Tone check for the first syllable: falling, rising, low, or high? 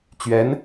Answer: rising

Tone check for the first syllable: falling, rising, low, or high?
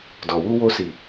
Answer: low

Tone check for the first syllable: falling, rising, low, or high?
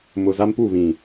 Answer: low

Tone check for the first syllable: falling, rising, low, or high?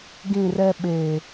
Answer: falling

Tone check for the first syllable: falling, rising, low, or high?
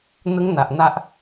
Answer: high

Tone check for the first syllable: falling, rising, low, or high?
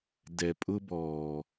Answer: low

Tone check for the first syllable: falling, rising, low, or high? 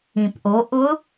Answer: low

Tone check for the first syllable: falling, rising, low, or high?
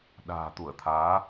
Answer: low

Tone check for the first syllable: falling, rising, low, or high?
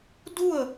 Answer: falling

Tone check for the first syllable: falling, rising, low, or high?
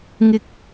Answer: high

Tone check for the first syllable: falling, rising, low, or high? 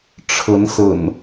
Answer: rising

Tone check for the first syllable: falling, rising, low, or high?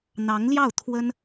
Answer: rising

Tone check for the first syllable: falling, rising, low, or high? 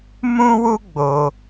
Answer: high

